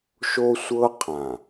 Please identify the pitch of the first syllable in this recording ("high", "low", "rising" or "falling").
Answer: high